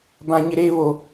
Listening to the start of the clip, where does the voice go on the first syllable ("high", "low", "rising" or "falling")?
high